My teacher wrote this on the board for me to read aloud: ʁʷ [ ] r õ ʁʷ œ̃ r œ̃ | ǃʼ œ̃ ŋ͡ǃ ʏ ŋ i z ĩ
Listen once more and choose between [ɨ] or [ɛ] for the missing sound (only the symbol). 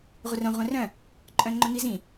ɛ